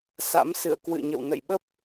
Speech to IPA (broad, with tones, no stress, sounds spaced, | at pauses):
s a̰˧˥ m s ɨ̰˧˨ ə̯ k w ɨ̰˧˨ ɲ ə̰˧˨ w n ə̰˧˨ j ɓ ə˦˥ p̚